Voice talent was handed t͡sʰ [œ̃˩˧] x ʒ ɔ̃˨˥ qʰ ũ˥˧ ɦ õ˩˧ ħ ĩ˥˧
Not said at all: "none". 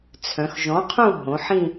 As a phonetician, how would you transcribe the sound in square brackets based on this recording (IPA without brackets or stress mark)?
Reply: œ̃˩˧